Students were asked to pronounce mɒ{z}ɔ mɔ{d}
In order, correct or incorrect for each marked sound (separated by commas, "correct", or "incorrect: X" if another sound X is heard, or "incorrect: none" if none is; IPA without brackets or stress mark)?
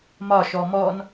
incorrect: ʃ, incorrect: n